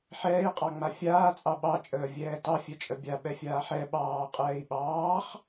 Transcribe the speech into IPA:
ħ ɛː i̯ qʼ ɑ ŋ͡m a fʲ aː t͡sʼ ɑ ɓ ɑ t͡ʃʼ əː vʲ ɛː t ɑ fʲ ɛ t͡ʃʼ ə bʲ a ɓ ɛ fʲ aː ħ ɛ ɓ ɑː qʼ ɛː i̯ ɓ ɑː χ

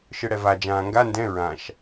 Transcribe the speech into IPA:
ʃ ɯ ɽ ɛ v a d͡ʒ ãː ŋ ɡ a n d ɛ̃ ɹ ã ʃ

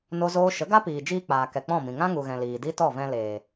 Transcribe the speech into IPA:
n o˦ z oː˦ ʃ ə˨˦ ɡ a˦ p iː˨ d͡ʒ iː˧ k͡p aː˨ k ɛ˨ k͡p ɔ̃˦˨ m ĩ˨ ŋ ã˦ ŋ u˨ ɣ ɛ̃˨ l iː˨ d i˦ t ɔ˦˨ v ɛ̃˧ l eː˨

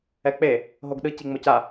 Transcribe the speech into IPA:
ɛ k͡p e | ɦ o ɡ ɗ ɯ c i ŋ͡m o c a

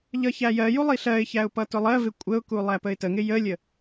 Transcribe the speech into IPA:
ʎ ʌ ç æ j ɜ j u lˠ i ɬ ɜ ɪ̯ ç æ ʊ̯ p ʌ t ʊ lˠ ɜ v ɪ kʷʼ ə ʊ̯ k u lˠ æ p ə ɪ̯ t ə ŋ ɪ j ə lʲ ə

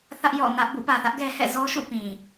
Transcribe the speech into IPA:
θ ä˦ ʔ j ɔ̰˦˨ n ä˦ ʔ b ṵ˦˨ p ä˨ θ ä˦ ʔ ɡ ɛ˦ h ɛ̰˦˨ z ɔ˦ ʃ ṵ˦˨ p ĩ˨

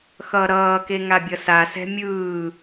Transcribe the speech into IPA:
x ʌ ɾ ʌː k e ŋ a bʲ ʌ s a s ɛ̤ mʲ ɯː

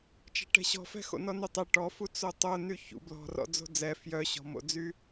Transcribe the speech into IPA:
t͡ʃ ɛ̤ ʈ ɛ̤ ɕ ɔ̤ f ɛ̤ x o̰ n ɔ n y tˤ ɛ ʈ ɔ f u t͡s o tˤ o n y ç ṵ b l ɔ̤ r ɔ̰ d͡z o̤ d͡z ɛ f j œ ɕ ɔ̤ m o̰ d͡z y

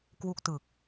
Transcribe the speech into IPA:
k w u˥˩ k̚ t ɯ˨˩ k̚

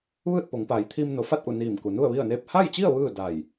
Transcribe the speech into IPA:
ʋ ɯː˥˨ t̚ p o˩˧ ŋ p a˩˧ j t̪ʰ iː˧ m n o˩˧ f a˥˨ t̚ ʔ u˧˩ n iː˧˩ m k u˩ n u˥˨ ə̯ ʋ i˥˨ ə̯ n eː˥˨ p̚ h a˥˨ j t͡ɕ i˥˨ ə̯ ʋ ɯː˥˨ d a˧˩ j

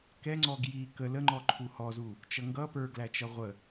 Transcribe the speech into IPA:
k ɛ ŋ͡ǀ ɔ ɡ j i k ə l ə ŋ͡ǃ ɔ ǃʰ u h ɔ z u | t͡ʃ ʌ ŋ ɡ ʌ p ə˞ ɡ l æ t͡ʃ ʌ ʁʷ ə

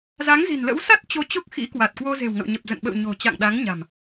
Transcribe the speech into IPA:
z a˨˦ ŋ z i̤˨˩ n l ə̰˧˥ w s a˦˥ t̚ t͡ɕ o˧ t͡ɕ o˦˥ k̚ x ḭ˧˥ k w a˨˩ t̚ k w o˧ z e̤˨˩ w ŋ ə̰˧˨ w ɲ ə˨˩ p̚ z ə̰˧˨ n ɓ ə̰˧˨ w ɲ o̤˨˩ t͡ɕ a̰˧˨ ŋ ɗ a˨˦ ŋ ɲ a̤˨˩ m

